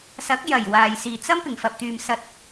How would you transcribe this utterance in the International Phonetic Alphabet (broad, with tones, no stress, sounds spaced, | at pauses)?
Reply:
s ɐ˨˥ k̚ j ɐ˨˩ j w aː˨ j s iː˨ t͡s ɐ˥ m p ɪ˨˩ ŋ f ɐ˨ p̚ t̪ yː˨ m s ɐ˧ t̚